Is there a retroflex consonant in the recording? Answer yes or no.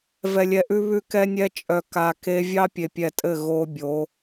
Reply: no